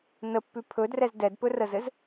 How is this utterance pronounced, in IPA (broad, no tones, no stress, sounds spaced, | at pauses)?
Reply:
n ə pː ʉ pʰ ɵ d r ɛ z d ɛ d p ɵ r ə z ɘ z